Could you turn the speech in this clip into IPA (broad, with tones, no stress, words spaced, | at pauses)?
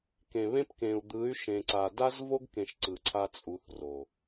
kẽ˨βẽ˦pkẽ˨u̯ d̪ɯ˨˦y̯ʃẽ˨ǀa˨ da˦zvo˦ɡkẽ˨ʃ ǀɯ˨ǀʰa˦t͡sʼu˨˦θro˨